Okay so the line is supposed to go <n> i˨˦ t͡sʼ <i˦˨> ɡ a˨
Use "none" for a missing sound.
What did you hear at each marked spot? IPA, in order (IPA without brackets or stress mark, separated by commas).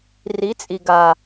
r, i˨